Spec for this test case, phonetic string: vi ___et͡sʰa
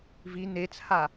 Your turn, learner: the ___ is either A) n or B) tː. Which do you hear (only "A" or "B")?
A